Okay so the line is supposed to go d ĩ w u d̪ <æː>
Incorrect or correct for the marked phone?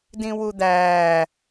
correct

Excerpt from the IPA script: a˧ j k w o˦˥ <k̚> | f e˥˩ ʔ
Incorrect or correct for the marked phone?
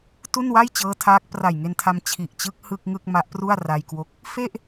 correct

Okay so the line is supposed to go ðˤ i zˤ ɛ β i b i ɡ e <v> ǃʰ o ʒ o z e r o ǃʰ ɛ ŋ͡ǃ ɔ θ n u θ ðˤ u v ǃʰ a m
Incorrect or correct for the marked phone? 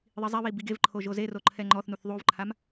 correct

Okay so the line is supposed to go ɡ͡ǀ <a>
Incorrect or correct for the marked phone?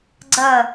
incorrect: ə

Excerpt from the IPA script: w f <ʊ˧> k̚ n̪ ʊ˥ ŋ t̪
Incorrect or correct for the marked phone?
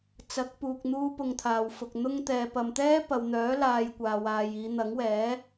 incorrect: ʊ˨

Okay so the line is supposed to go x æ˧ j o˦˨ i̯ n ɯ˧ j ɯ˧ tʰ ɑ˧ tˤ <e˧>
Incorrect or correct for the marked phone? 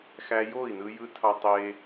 correct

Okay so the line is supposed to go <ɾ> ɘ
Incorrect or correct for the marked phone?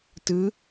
incorrect: t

